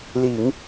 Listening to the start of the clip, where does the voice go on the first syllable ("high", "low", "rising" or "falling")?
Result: low